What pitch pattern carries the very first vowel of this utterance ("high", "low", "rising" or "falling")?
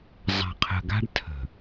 low